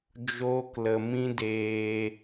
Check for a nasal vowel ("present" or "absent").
present